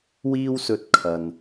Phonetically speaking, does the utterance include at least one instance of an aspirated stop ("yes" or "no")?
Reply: yes